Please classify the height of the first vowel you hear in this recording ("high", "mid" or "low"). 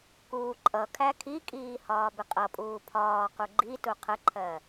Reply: high